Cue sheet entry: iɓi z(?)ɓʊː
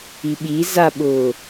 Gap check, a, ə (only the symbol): a